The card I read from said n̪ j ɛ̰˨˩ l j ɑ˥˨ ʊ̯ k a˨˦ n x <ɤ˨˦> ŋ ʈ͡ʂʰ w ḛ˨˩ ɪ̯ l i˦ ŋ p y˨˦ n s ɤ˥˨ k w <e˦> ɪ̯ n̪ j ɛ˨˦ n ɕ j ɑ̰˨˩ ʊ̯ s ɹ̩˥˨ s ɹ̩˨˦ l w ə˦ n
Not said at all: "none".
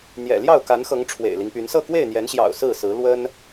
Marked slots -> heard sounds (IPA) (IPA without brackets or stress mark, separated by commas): ɤ˨˦, e˥˨